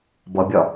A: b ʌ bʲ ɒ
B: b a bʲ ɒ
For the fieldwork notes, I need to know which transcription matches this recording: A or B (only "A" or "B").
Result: A